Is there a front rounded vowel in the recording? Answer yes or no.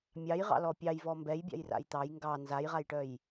yes